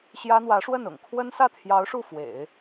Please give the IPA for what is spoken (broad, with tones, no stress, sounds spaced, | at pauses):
ɕ j ä˥ n̪ w ä˧˥ ʂ w ə˥˩ n ʊ̰˨˩ ŋ kʰ w ə˥ n s ä˥˩ t̪ʰ j ɑ˧˥ ʊ̯ ʂ u˥˩ f w ḛ˨˩˦ ɪ̯